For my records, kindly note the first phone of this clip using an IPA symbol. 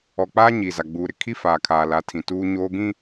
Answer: ɔ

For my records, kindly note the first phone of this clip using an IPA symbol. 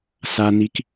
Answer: s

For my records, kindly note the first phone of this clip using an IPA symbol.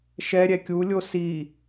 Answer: ʃ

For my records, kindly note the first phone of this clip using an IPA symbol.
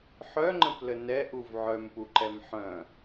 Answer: ħ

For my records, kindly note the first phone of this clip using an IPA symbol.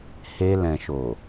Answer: h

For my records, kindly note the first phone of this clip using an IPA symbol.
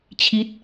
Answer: t͡ɕʰ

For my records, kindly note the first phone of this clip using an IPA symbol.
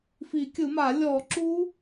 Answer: f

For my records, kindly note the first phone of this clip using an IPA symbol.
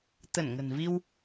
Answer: t̪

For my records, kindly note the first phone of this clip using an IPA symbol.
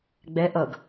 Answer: ɡ͡b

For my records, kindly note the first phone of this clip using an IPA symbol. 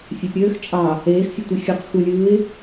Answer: fʲ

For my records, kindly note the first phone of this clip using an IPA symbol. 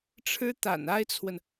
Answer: ʈ͡ʂʰ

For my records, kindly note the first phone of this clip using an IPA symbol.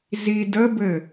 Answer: z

